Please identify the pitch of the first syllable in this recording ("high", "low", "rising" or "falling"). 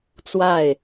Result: falling